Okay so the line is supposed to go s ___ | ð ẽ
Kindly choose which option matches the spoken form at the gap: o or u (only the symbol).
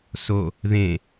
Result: o